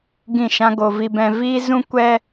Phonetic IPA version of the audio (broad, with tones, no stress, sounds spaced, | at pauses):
ɡ ĩ˦˨ ʃ ã˦ ɡ o˧ v i˧ b ɛ̃˧ v iː˦ z ũ˦ kʷ ɛ˧